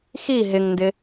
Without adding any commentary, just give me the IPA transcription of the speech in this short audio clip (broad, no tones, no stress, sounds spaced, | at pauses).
x i ɦ ɪ ŋ n d ɪ